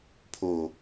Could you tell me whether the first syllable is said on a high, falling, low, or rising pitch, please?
low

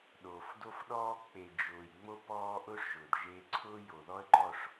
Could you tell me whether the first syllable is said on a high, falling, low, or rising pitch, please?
low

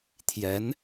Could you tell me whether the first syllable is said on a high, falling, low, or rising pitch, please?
rising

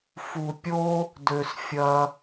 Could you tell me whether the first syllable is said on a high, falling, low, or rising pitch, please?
low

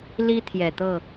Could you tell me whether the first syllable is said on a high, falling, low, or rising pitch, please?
high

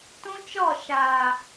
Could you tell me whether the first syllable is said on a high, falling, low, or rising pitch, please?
high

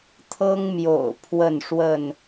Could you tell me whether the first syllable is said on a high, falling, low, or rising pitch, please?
high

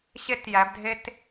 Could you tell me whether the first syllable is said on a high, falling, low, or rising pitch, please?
high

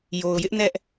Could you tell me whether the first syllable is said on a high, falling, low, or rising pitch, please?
low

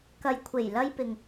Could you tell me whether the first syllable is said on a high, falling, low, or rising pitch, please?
low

